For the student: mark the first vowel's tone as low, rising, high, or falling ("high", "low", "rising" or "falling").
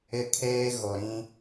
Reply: high